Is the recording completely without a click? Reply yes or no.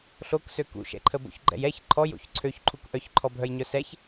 no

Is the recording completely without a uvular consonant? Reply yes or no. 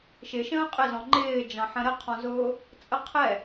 no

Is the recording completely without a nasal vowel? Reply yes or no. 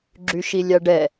yes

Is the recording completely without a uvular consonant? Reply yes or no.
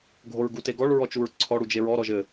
yes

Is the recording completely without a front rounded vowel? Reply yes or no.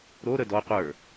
yes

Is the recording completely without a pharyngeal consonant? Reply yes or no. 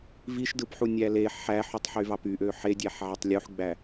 no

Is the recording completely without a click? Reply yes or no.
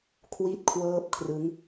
yes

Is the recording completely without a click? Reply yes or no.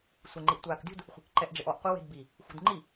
no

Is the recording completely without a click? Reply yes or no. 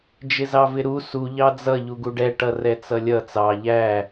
yes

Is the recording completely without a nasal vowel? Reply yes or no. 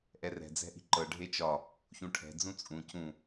no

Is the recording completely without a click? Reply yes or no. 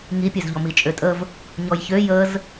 yes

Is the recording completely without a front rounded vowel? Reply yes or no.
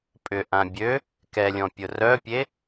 no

